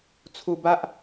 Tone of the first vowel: low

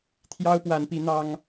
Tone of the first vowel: high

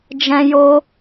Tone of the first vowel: high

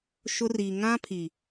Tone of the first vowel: high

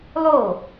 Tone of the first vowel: falling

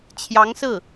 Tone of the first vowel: rising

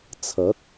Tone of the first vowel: rising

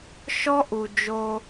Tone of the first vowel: high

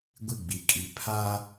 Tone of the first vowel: falling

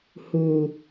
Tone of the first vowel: low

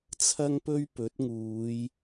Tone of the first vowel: high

